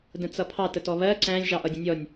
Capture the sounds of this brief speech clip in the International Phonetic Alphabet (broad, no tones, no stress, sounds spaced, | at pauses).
d ə̃ t͡s ʌ pʰ ɑ t ə t ɔ β ɜ ǀ æ̃ lʲ ʒ ɑ ʔ ʌ dʲ ə̃ nʲ ɔ nʲ